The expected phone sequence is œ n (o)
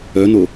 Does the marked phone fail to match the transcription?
no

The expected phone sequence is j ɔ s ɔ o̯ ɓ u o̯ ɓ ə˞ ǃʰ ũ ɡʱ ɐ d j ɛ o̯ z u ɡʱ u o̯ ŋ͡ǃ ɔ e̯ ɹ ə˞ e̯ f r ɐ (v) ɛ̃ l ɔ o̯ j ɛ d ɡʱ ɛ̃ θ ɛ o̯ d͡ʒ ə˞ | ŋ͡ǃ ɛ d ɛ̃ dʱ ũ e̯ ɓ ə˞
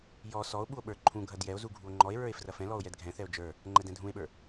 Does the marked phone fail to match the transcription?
yes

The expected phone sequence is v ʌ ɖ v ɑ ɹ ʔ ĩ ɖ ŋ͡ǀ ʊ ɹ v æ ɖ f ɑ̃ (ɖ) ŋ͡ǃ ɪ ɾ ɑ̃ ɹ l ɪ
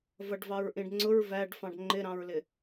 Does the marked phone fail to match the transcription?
no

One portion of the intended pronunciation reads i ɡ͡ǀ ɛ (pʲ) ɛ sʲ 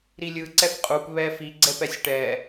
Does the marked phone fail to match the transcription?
yes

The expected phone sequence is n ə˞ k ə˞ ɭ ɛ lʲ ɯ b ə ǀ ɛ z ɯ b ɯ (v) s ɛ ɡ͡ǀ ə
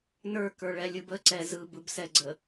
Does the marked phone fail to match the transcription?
yes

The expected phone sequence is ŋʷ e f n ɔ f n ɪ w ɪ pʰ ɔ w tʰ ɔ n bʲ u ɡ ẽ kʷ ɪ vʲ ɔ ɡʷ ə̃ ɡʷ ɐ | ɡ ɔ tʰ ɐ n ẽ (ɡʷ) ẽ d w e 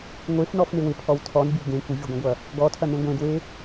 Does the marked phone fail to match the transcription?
no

